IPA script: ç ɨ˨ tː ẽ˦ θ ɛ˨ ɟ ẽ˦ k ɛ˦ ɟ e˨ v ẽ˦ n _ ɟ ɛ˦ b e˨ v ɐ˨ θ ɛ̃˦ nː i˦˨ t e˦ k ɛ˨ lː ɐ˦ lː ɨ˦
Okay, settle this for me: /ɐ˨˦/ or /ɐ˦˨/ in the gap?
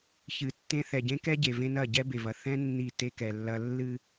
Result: ɐ˦˨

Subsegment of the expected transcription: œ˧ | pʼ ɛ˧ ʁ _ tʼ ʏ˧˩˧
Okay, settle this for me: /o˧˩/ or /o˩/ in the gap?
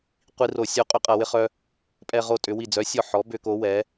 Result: o˧˩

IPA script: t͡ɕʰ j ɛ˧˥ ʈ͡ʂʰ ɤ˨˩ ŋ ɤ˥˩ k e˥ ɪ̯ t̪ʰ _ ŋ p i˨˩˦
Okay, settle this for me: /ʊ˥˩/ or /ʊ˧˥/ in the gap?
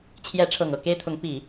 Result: ʊ˧˥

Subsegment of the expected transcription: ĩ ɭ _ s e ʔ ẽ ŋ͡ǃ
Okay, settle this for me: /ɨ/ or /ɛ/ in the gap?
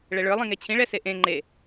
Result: ɛ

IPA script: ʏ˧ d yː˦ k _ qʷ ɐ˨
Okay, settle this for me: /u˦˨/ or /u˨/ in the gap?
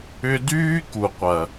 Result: u˨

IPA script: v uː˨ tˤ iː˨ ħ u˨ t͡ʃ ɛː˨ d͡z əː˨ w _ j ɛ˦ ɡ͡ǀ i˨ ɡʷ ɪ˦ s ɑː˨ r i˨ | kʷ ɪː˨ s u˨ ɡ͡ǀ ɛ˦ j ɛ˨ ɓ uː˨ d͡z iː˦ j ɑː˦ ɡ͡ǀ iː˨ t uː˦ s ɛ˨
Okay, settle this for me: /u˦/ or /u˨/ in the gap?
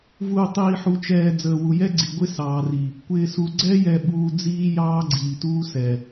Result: u˨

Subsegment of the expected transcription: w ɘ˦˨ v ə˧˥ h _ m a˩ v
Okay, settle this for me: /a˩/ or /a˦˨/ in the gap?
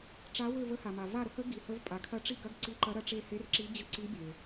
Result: a˩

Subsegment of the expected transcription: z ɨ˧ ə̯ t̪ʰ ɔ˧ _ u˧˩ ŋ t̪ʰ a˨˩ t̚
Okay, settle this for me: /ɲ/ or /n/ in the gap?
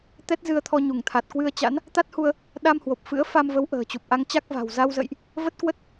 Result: ɲ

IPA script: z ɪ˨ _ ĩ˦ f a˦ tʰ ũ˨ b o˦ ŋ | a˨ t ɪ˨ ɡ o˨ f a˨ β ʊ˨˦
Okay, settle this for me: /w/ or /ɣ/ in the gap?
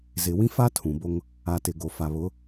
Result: w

